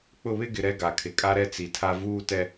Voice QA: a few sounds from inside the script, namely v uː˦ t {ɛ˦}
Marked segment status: correct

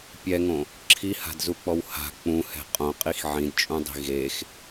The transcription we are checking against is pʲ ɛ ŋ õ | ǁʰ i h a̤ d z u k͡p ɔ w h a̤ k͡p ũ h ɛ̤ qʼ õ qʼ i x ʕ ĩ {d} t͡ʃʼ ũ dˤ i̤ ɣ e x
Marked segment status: correct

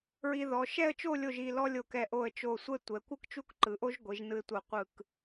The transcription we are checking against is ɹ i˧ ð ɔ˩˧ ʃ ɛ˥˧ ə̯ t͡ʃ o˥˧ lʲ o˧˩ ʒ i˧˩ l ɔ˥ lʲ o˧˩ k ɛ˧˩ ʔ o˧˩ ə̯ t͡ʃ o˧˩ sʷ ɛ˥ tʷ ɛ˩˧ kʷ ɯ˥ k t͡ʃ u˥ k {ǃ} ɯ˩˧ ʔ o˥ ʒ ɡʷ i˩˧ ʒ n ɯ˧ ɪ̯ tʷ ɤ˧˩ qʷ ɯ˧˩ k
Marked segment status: correct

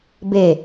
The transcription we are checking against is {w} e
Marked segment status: incorrect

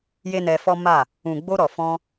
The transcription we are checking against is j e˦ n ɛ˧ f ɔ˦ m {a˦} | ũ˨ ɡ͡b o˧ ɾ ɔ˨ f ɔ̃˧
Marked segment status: incorrect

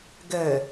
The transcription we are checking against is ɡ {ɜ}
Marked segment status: incorrect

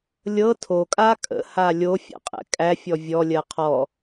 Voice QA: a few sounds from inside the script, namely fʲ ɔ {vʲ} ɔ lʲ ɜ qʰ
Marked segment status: correct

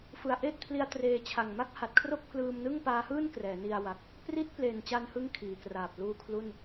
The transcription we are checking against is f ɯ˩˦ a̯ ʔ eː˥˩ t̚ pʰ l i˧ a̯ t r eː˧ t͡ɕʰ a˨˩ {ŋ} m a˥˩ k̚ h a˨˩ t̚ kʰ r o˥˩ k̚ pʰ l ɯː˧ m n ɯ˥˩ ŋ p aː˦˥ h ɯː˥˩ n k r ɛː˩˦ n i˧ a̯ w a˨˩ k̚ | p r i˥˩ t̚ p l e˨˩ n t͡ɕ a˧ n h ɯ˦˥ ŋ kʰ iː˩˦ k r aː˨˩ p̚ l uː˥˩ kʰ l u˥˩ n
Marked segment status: correct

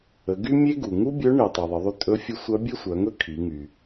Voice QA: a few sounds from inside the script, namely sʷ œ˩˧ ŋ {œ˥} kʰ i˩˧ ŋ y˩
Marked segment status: incorrect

